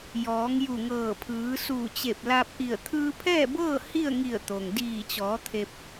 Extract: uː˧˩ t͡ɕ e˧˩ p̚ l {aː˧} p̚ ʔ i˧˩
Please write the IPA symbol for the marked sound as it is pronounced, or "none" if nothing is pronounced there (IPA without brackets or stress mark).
aː˧